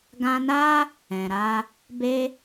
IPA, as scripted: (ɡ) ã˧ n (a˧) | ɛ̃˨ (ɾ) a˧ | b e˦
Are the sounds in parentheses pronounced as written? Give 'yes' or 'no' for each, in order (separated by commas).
yes, no, yes